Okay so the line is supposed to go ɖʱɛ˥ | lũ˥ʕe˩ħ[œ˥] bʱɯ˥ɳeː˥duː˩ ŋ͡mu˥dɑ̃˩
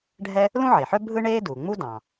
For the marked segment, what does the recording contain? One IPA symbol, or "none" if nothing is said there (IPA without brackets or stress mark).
œ˥